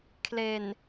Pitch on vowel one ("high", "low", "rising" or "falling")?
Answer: low